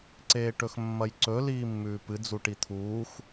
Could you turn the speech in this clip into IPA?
ǀ eː ʈ ɵ x mː ɐ j ǀ ɵ l iː mː ʉː p ɨ d͡z u ʈ i t̪ʰ uː x

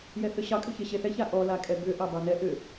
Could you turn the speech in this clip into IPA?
j ɛ θ ʏ ɕ ɑ kʼ ʏ ç e ɕ e θ ɛ ç a ʔ ɔ l a kʼ ɛ b ʏ ʔ ɑ b ɑ n ɛ ʔ ʏ

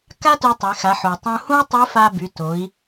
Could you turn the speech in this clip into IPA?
k a˥ t ø˧ tˤ e˩˧ x a˩˧ ħ o˩ tˤ ũ˧ h ũ˥ i̯ tˤ i˧˥ f a˧ b y˩˧ t o˩˧ i̯

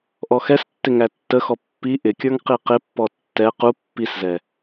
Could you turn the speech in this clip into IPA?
ʔ ɔ x ɛ s tː ɪ ŋ æ tː ə x ɔ pː i ʔ ɪ kʲ ə˞ ŋ q i q ɪ pː ɔ tː ɛ q u pː i s z ɛ

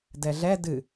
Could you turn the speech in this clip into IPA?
d ɛ ɮ ɛ d ɨ

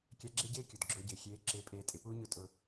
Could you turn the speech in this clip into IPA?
kʲ a˧˥ ɡ͡ǁ e˥ ɟ eː˥ kʲ ʊ˩ d ɡ͡ǁ ʊː˧ ɟ ɪː˩ xʲ eː˧˥ ǁ ɪː˧ pʼ eː˧ tʼ ɪ˩˧ p uː˥ ɲ ʊ˧˥ tʼ ʊ˧

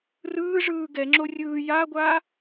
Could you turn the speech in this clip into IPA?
r ɯː ʐ ɯː ɡ ɛ ŋ͡ǁ o rʲ ɯː j a ɡʷ a

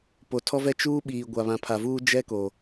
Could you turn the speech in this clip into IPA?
p o˨ tʰ ɔ˦ v ɛ˦ t͡ʃ uː˦ ɓ iː˨ ɡʷ a˨ β ã˨ pʰ a˨ v uː˦ d͡ʒ ɛ˦ k o˨

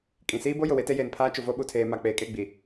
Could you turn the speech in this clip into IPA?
kʼ ĩ˨ s iː˦ b o˦ j ʊ˨ w e˦ t e˦ j eː˨ n pʰ aː˦ t͡ʃ ʊ˨ v o˦ ɓ u˨ tʰ eː˨ m a˨ k͡p eː˨ kʼ e˦˨ ɡ͡b i˨

